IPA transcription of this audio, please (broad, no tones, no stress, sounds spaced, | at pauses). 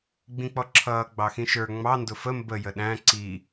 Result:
ɡ͡b ĩ k͡p ɔ ǁʰ ʌː ɡ͡b ɑ x ĩ ʃ ə˞ ŋ͡m ɑ n d ʊ f ə m b ə j ə ɗ æ̃ ǀ i